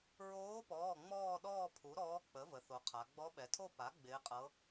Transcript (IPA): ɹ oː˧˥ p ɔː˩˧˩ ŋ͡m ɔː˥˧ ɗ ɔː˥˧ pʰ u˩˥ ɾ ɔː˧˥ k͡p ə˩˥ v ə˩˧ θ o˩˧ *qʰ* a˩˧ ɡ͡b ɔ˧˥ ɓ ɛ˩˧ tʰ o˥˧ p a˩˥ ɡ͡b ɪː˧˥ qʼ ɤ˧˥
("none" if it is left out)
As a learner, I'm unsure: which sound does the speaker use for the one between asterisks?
qʰ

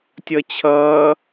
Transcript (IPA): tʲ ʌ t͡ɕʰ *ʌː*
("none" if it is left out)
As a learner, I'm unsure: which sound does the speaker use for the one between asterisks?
ʌː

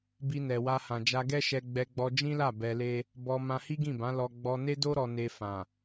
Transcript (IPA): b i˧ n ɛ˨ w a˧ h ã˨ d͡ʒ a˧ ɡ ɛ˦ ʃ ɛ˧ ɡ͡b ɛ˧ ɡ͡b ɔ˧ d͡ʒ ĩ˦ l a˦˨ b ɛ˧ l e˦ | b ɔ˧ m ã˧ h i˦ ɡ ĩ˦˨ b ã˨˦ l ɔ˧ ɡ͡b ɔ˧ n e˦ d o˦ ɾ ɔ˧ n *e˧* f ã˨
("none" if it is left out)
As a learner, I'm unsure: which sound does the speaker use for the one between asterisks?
e˧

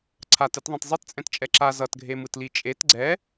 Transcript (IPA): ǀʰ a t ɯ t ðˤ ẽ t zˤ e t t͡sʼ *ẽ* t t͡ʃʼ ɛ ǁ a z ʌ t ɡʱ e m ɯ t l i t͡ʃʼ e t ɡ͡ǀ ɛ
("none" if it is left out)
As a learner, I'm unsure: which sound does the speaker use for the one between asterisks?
ɛ̃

